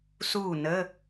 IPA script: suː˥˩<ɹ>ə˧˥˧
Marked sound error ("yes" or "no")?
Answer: yes